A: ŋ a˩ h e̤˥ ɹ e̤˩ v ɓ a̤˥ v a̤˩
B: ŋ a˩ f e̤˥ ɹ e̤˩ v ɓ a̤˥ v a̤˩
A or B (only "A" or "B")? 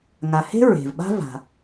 A